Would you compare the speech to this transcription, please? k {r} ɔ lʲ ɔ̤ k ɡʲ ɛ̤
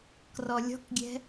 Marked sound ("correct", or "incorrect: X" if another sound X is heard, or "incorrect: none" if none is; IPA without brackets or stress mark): correct